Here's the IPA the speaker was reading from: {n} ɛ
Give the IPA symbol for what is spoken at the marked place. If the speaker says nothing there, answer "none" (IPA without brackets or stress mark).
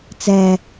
t͡s